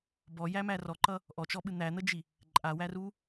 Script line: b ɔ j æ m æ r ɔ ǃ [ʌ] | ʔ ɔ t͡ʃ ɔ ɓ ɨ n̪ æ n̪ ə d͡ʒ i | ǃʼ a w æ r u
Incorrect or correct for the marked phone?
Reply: correct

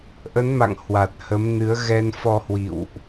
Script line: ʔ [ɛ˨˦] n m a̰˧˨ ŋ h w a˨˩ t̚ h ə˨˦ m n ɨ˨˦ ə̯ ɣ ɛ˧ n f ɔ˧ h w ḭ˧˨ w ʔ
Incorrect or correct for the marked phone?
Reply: incorrect: ə˨˦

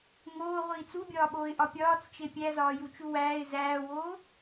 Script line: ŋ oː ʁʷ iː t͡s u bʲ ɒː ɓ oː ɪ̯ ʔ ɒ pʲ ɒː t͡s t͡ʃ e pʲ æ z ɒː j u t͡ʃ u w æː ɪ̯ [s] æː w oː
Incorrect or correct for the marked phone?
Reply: incorrect: z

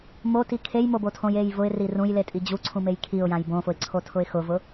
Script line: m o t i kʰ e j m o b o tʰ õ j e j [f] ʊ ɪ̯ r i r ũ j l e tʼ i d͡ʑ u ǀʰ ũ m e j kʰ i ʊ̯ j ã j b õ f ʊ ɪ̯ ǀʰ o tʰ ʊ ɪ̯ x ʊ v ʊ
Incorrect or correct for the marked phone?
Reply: incorrect: v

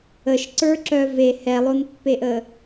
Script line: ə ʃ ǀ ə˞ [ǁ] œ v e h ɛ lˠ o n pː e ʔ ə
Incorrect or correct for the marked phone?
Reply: correct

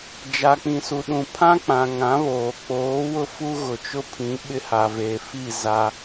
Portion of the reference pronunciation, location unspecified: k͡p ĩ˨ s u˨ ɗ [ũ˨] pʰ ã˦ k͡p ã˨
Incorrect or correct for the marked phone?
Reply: correct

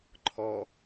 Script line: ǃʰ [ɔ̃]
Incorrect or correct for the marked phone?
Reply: incorrect: ɔ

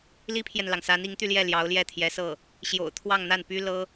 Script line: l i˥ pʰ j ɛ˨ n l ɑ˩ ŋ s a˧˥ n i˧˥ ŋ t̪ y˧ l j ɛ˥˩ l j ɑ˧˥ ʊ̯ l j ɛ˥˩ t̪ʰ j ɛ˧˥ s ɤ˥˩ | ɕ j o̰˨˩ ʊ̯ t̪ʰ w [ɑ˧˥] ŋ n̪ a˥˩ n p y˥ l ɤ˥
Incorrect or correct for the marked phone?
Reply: incorrect: ɑ˥˧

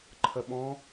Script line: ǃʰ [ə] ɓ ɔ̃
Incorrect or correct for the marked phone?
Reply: correct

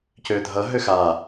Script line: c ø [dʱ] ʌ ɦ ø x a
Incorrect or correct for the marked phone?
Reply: correct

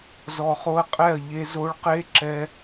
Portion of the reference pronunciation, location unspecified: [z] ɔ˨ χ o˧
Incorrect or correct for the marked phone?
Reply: correct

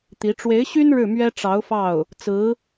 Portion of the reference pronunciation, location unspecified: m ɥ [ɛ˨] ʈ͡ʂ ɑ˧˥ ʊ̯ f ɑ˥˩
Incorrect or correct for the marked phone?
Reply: incorrect: ɛ˥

